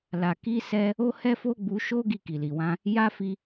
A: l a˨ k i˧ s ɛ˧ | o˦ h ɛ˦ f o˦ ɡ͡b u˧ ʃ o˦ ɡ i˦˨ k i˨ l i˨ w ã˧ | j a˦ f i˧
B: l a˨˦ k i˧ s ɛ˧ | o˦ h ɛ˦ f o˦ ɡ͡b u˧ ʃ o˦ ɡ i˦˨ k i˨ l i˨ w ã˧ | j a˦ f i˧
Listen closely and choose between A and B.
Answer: A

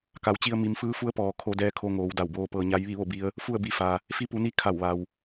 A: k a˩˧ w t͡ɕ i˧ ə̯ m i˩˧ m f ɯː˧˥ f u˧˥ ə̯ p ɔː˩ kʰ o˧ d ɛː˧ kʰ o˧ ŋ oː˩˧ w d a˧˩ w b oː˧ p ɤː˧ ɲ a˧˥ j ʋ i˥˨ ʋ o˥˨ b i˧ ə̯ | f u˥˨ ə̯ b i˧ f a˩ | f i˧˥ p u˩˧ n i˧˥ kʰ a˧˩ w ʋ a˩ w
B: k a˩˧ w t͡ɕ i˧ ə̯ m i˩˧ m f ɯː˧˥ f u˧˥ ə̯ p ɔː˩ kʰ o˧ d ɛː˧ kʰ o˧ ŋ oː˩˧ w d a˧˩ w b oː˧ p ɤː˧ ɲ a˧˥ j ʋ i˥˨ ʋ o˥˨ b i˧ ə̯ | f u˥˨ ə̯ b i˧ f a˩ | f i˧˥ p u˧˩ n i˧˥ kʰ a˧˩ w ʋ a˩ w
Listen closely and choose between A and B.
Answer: A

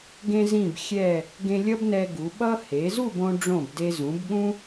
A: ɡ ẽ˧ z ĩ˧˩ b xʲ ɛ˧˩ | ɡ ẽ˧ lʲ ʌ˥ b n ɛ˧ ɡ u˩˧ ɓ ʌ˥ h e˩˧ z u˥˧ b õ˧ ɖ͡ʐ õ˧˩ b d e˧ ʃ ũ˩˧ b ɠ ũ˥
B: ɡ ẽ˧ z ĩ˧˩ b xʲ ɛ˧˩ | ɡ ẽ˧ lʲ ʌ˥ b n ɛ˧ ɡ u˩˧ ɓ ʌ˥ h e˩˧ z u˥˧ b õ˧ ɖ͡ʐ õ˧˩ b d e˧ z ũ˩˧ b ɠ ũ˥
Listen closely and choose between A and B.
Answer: B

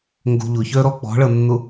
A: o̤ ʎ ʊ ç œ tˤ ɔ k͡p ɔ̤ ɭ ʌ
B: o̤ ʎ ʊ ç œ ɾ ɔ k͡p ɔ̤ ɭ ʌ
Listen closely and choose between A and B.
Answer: B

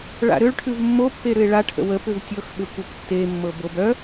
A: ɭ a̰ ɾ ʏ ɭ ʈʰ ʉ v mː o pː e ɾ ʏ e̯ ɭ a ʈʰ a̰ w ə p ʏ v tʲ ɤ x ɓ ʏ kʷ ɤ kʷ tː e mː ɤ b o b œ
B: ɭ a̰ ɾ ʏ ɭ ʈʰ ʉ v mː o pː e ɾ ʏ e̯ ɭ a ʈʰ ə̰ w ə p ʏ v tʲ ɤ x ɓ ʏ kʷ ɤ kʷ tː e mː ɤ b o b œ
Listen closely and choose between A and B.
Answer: B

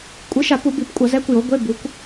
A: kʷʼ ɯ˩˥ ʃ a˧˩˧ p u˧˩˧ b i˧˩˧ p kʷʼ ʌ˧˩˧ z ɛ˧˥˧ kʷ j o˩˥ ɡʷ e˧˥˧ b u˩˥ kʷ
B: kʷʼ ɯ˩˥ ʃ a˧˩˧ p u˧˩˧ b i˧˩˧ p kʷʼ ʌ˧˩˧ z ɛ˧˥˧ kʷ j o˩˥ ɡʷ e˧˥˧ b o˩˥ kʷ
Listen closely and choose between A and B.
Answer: A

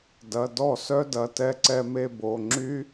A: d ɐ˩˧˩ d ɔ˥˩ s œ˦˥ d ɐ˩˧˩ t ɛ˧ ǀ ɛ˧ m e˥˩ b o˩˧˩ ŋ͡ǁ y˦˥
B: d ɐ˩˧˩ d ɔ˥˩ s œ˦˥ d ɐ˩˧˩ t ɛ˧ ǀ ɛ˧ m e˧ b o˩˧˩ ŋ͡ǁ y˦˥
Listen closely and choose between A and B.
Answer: B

